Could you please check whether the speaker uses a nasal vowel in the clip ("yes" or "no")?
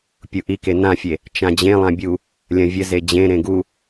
yes